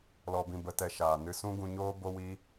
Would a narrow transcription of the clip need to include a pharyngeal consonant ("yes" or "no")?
no